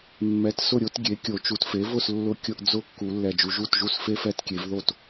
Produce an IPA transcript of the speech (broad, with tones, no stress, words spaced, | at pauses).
mːɛ˩˥tsʊ˥˩ɾʲo˧˥t ɡʲe˩˥kʲo˨˩˦t͡ʃu˨˩˦t fe˩˥vʊ˥˩s lːʊ˧˥ kʲʊ˧˥ʔ d͡zʊ˥˧kːu˨˩˦ lːɛ˨˩d͡ʒu˨˩˦ʒu˥˩tʒu˥˩s fe˥˧fɛ˥˩tkʲe˨˩˦vðo˥˩t